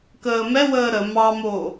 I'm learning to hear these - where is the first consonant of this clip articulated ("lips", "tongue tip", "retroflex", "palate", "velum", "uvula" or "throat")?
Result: velum